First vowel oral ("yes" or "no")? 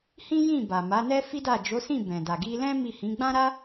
no